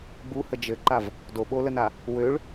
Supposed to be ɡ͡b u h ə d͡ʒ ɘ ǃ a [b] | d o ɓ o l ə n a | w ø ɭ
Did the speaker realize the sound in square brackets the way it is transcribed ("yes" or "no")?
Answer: no